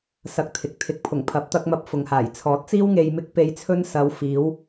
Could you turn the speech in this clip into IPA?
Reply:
sɐ˧k̚t̪ʰɪ˨k̚ t̪ʰɪ˨˥k̚ pʰʊ˨˩ŋ pʰɐ˨˥p̚t̪ɐ˧k̚mɐ˧p̚ fʊ˨ŋhaː˨˩j t͡sʰɔː˨˥t̚t͡siː˥w ŋe˧jmɪ˥k̚ pe˧jt͡sʰɵ˥n sɐ˨˧wfiː˨˧w

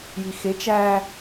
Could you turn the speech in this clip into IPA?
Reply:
jixe t͡ʃæ

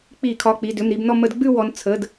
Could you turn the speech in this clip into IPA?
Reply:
k͡pi˧˩˧kʰɒ˩˧˩ k͡pi˩˧˩dʏ˩˧˩mɾi˦˨bnɔ˦˨ mə˧˩˧dɡ͡bʉ˦˨ wɔ˨˦n t͡sʰə˩˧˩d

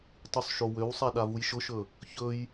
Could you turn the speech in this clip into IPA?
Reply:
tˤusˤʃowøwsˤa ɗavujʃʊʃɵ | çɵj

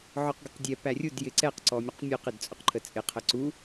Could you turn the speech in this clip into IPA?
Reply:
ʕɔqɡəqdʲɛ pærʲud jɪǀɛq ǀɔmʲʊqmʲuq ɪdt͡sʼʊqǃʰət͡sʼɪ qʰəǀu

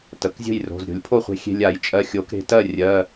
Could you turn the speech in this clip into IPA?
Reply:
tə˩˧˩kzʲə̤˥˨jro̤˩˧˩z ɾʲo̤˨˩˦lʲpʰo˥˨χʷe̤˧ xʲe̤˧lʲa˨˩˦jt͡ʃʼɜ˧ xʲo˨˩˦kɾe̤˧tɜ˥˨ rʲɜ˩˧˩

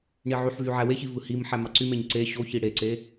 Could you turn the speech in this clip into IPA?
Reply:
ɳiʕyħvy ʕæweçi vɯhimħæ mɑǀymeɲ ǀe ɕoçi ɽeǀe

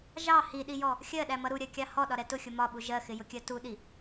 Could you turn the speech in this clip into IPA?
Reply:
ʒɑ hiɗijɔ | xʲɜɗæmʌ ɾuɾʲɜkʲɑ hɔɗɒɾɛ tʊxʲʊ mɒɓu ʒɜxɪjʊkʲɜ tuɗi

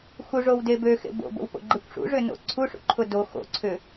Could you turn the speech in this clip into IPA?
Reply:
xuʐowde bøxḛ bo̰bo̰wpo̰ɡ͡ǃekʷ ʂṵʐʏno̰ ǀʰuʂṵǃʰʊ do xo̰ǀʰʏ

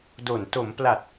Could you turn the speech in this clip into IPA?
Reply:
do˨˩n to˩˦mpla˨˩t̚

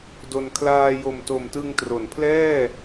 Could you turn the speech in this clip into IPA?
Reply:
do˧n kʰlaː˧jo˨˩mto˨˩m tɯ˧ŋtro˩˦npʰlɛː˥˩

